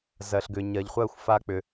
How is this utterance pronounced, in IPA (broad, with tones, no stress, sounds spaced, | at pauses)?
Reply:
z ɜ˨ ɬ ɡ ʏ˨ ɲ ɜ˨ ʎ χʷ ɜ˦˨ xʷ f a˦ k͡p ʏ˧